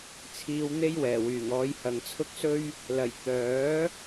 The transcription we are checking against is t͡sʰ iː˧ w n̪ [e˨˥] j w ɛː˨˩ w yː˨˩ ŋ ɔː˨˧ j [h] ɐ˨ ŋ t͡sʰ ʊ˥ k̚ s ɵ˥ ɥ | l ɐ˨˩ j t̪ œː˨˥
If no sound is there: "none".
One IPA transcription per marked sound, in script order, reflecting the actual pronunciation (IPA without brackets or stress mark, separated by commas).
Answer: e˥, h